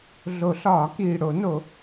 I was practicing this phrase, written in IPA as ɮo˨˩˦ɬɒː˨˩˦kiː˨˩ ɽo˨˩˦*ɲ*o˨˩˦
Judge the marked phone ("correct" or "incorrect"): incorrect